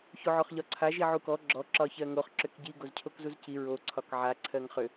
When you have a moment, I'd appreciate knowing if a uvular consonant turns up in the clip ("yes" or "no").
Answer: yes